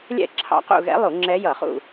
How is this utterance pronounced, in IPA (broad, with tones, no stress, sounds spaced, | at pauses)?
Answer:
lʲ ɛ̰˦˨ ǁʰ ɑ̰˧˥ q ṵ˦˨ ɣ ɛ̰˧˥ lˠ u˧˩˧ ŋ͡ǁ ɛ˧˥ j ʌ˧˩˧ χ ṵ˦˨